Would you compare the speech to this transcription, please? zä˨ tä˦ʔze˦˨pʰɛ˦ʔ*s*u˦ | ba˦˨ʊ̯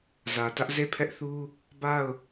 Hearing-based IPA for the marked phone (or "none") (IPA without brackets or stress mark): θ